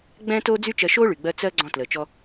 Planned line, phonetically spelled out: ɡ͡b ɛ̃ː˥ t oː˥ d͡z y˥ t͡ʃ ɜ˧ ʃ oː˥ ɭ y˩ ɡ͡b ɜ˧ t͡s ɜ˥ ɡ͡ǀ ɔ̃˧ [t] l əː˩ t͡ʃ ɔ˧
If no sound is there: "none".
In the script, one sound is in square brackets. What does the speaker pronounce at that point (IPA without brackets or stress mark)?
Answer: t